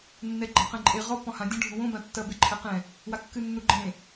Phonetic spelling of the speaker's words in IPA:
nː ɛ ɡ͡ǃ a q ɛ̃ ǃʼ e ʁ ɔ p ɔ̃ h ã dʲ ɔ̃ ɖʱ ũ w õ b ã tː ɐ b e ǃʰ ɛ q ɛ̃ | w a kː ɨ nː u ɡ͡ǃ ẽ

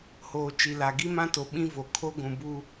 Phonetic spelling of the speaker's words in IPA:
h oː˨ t͡ʃ i˨ l a˨ ɡ i˦ m ã˦ t o˨ ɓ ĩ˦ v o˨ kʰ o˦ ɡʷ ũ˨ b u˦

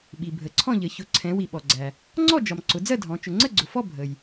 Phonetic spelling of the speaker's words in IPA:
ɓ i˩ bʱ ə˩ ǀʰ ɔ̃˥˨ ʎ ə˩˧ ç ʊ˩˧ ǀʰ ɛ̃˩˧ w i˩ ɓ ɔ˩ ɡ͡ǀ æ˩ | ŋ͡ǀ ɔ˥˨ d͡ʒ ɒ˩ m ǀ ʊ˩˧ d͡z ɜ˥˨ dʱ ɔ̃˩˧ t͡ʃ ʊ˩ ŋ͡ǀ ə˥˨ ɡ͡ǀ ʊ˩ f ɔ˥˨ bʱ ə˩ j

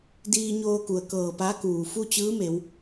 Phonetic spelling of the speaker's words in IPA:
d iː˧ ɲ oː˧ k u˩ ə̯ k ɤː˧˩ p a˧˥ k uː˩ f u˥˨ t͡ɕ ɯː˧˥ m e˩˧ w

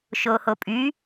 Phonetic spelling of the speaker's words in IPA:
ʃ o h o pʼ y

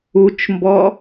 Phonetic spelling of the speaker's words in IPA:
u t͡ʃ m b ɔ

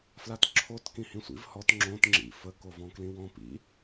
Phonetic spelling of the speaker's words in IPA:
f l a t ǁʰ o t k ĩ h ĩ sʷ ḭ v h ɔ t ŋ͡ǁ õ t ŋ͡ǁ ḭ f ə k o v ɔ̃ k l ĩ w ɔ̃ p ḭ

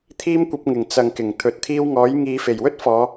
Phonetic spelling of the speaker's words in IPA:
t̪ʰ iː˥ m kʷ ɐ˧ p̚ ŋ ɪ˨˩ ŋ t͡s ɐ˨ ŋ k ɪ˨˩ ŋ t̪ʰ ɵ˨˥ t̚ t̪ʰ iː˥ w ŋ ɔː˨˥ j ŋ iː˨˧ f e˨˩ j w ɵ˥ t̚ f ɔː˨˧

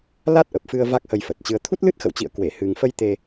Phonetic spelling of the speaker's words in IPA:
l a˦˥ t̚ ʔ ə˨˩ p̚ f ɨ˧ ə̯ v a˦˥ k̚ h ə˧ j f ə˨˩ t̚ t͡ɕ ɨ˧ ə̯ t̪ʰ u˦˥ t̚ l ɨ˦˥ t̚ x ə̰˧˨ w t͡ɕ ḭ˧˨ ə̯ k w e˧˩ h ɨ˨˩ ŋ f ə˧ j t̪ e˧

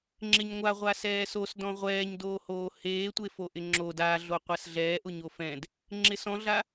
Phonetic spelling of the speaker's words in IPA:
ŋ͡ǁ ɪ ɲ ŋʷ a ʁʷ a s ɛː s o s d ɔ̃ ʁʷ ɛː ɲ d oː h oː h eː tʷ e f o ʔ ɪ ŋ͡ǁ o d a ɮ o qʷ a s ɮ ɛː ʔ ʊ ɲ o f ɛ̃ d | ŋ͡ǁ ɪ s ɔ̃ ɮ a

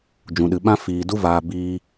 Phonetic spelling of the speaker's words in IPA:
d͡ʒ ũ˨ ɗ ɨ˨ ɓ ã˦ f iː˨ d u˧ v aː˨ b iː˧

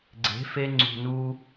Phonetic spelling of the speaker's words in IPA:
ɡ͡ǀ e̤˨˦ f e˧ ŋ͡ǀ ṳ˨ n u˧

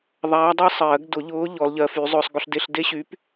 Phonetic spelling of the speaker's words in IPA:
ðˤ aː˧˥ dˤ əː˥ sˤ ɜː˨˩˦ ɡ d ʊ˨˩˦ ʎ ʊː˧˥ ʎ ɔ˧˥ l ʎ ɜ˧˥ f y˧˥ zˤ ʊː˥ sˤ ɡ ʊ˥ ɬ d e˥ ɬ d e˥ ɕ y˧˥ p

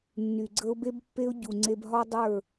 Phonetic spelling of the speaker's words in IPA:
nː y˨ ɡ͡ǀ ə˦ ʊ̯ b e˦ b pː e˦ ʊ̯ ɟ u˨ ŋ͡ǀ e˧ b ɦ ɒ˦ dˤ ə˞˦˨

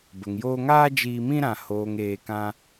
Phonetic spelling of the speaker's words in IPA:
b ə˨ ŋ j oː˧ ŋ aː˦ d͡ʒ iː˧ m ĩ˦ ɾ ã˨ h oː˨ ŋ eː˨ k ã˧

